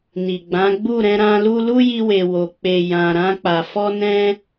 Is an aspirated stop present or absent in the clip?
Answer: absent